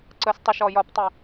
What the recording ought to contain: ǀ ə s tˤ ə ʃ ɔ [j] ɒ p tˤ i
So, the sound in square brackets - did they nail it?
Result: yes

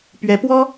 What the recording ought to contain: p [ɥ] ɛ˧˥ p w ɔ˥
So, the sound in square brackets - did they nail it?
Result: yes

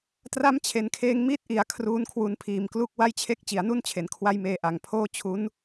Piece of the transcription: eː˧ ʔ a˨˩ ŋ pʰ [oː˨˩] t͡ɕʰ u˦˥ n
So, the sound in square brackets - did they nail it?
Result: no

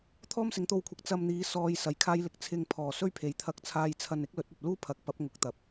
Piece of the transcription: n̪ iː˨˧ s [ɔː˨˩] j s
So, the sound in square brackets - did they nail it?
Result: no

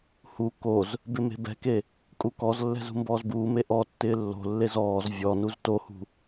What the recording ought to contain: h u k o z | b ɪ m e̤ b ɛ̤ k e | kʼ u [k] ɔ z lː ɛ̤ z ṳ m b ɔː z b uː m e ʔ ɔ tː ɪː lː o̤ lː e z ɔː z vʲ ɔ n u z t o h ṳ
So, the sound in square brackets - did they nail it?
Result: yes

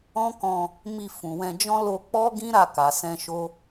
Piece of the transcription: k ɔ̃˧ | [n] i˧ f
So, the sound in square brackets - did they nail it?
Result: no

